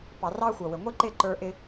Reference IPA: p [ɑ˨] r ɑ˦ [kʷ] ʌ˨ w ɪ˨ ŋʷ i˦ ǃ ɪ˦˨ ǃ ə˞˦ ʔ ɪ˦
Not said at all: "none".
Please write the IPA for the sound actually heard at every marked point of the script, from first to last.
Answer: ɑ˨, xʷ

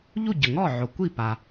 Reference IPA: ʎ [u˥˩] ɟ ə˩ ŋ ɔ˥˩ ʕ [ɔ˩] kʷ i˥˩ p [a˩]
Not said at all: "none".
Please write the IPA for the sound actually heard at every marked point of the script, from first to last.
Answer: u˥˩, o˩, a˩

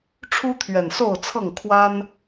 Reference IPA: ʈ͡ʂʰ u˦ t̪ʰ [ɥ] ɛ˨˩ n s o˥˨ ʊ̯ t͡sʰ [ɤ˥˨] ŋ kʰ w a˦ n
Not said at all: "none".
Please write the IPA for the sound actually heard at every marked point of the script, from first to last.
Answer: ɥ, ɤ˥˨

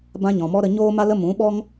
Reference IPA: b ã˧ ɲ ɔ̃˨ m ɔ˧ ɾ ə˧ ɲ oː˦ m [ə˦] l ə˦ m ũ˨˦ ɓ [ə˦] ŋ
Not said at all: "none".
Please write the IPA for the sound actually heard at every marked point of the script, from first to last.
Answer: a˦, ɔ˦

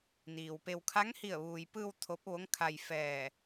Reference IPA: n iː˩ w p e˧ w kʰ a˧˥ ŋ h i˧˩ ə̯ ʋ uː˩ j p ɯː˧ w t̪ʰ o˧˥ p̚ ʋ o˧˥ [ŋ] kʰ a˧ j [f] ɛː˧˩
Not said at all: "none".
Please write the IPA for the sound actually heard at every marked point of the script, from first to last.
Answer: ŋ, f

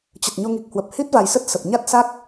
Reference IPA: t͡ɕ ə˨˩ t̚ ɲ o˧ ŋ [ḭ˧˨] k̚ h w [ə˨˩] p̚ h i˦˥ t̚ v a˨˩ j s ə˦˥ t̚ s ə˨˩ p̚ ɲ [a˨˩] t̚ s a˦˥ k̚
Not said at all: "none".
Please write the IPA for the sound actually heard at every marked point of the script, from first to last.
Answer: i˨˩, ə˨˩, a˦˥

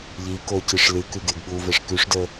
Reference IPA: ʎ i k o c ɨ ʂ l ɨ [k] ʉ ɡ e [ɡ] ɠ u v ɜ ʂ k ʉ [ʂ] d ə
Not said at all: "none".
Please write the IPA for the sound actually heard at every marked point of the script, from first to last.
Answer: k, ɡ, ʂ

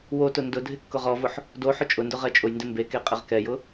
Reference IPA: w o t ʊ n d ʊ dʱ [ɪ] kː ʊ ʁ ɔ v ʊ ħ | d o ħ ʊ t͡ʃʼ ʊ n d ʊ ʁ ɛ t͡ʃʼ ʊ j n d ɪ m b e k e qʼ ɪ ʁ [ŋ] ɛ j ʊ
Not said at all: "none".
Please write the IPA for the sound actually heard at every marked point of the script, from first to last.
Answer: ɪ, k

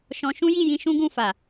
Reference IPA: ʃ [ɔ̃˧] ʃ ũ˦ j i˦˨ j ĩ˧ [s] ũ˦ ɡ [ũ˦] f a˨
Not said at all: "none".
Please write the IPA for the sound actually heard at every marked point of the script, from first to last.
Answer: ɔ̃˧, ʃ, ũ˦˨

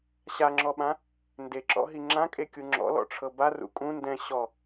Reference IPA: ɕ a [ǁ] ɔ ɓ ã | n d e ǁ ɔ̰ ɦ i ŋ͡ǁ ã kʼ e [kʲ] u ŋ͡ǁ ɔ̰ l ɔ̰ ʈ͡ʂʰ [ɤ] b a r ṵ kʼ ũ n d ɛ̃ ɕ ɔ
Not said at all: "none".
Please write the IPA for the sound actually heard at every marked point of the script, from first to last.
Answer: ŋ͡ǁ, kʲ, ɤ

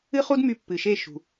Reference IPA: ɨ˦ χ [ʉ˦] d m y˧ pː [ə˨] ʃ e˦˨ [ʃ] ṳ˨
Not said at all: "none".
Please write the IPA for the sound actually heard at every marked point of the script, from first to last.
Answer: u˦, ɨ˨, ʃ

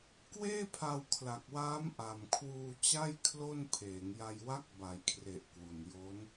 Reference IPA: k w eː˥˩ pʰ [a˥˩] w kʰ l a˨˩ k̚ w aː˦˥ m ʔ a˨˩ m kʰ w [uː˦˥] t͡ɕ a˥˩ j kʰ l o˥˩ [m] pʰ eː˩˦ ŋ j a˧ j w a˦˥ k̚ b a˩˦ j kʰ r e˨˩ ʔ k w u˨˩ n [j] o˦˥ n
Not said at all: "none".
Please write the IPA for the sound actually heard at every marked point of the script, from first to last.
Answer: a˧, uː˧, n, j

